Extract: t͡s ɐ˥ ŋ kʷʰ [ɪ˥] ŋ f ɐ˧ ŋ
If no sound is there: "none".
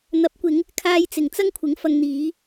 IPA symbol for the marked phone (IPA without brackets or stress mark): ɪ˨˥